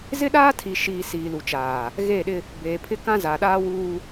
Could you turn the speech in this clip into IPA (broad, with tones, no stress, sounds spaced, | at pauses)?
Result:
z ɪ˦ ɗ aː˦ tʰ i˨ ʃ iː˨ s iː˨ l u˨ t͡ʃ aː˨ | ɣ eː˦˨ ɗ ɪ˦ | b eː˨ pʰ ɪ˦ k ã˦ z a˨ ɗ aː˦ w uː˦